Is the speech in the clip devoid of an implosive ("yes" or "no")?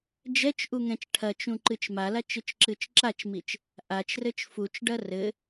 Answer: yes